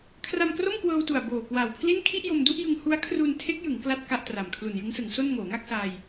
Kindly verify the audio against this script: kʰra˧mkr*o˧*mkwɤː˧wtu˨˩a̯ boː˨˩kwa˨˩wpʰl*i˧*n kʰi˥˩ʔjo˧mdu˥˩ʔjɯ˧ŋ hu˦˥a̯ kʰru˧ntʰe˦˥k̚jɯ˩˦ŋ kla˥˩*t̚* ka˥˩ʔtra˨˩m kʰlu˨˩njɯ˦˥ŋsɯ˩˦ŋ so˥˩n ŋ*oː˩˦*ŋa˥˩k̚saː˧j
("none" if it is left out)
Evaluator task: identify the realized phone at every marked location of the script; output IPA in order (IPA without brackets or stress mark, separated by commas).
o˥˩, i˥˩, t̚, oː˩˦